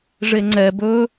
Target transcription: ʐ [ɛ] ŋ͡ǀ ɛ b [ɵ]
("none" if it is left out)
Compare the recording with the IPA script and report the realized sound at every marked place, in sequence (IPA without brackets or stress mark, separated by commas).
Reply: e, ɵ